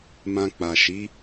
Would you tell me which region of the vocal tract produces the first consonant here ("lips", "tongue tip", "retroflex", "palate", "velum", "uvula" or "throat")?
lips